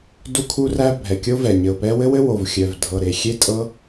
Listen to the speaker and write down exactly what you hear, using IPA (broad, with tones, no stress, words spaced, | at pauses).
du˥kʰu˥ræ˥ bʱɛ˨˩ kʲo˥vɛ˨˩ ɲɘ˨˩ʊ̯pɛ˥ wɘ˥wɘ˥wo˨˩v xʲœ˨˩v dʱɤ˨˩ ɾe˨˩ xʲe˥tʼɤ˥